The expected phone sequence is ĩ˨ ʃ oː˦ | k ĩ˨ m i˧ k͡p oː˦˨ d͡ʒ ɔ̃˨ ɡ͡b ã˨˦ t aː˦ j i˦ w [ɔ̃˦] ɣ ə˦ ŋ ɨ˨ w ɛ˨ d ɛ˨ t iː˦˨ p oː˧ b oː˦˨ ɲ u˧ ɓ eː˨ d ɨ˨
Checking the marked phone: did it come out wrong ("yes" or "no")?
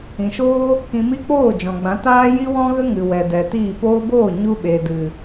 no